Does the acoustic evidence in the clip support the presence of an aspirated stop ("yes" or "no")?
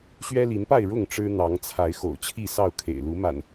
yes